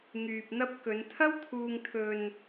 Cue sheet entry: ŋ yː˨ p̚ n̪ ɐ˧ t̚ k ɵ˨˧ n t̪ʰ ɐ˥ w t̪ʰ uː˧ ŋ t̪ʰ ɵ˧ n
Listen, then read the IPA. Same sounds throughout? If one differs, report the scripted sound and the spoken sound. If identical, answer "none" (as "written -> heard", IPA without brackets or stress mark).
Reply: t̚ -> p̚